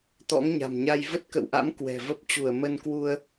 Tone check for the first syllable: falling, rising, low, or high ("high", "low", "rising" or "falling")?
rising